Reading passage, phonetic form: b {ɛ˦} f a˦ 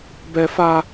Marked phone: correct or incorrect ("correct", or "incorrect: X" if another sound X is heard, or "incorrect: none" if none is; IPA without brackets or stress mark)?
correct